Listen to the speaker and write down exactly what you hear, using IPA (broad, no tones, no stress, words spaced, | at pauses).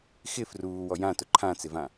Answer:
xɪ fruːwɔ jãtʊ ǃʰãt͡sɪvã